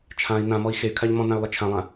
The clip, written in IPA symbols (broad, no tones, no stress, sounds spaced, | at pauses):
t͡ʃʰ ã i̯ n ã m ɔ i̯ x e y̯ kʰ a ʎ m ɔ̃ n ã y̯ lˠ e t͡ʃʰ ã lˠ ã